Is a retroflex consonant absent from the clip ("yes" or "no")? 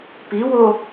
yes